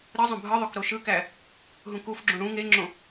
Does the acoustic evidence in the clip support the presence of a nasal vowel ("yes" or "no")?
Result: yes